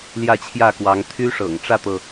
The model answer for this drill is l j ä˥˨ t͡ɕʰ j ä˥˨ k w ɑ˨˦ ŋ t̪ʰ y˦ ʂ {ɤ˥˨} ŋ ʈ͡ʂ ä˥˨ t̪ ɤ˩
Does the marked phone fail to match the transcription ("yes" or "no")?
yes